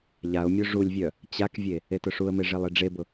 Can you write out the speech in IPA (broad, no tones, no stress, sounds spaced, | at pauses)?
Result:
ʎ a ʊ̯ mʲ o ʐ u lʲ vʲ œ | t͡ɕ a k vʲ e | e t ʊ ʂ u ə̯ m e ʐ e lˠ i ɖ͡ʐ e b ʊ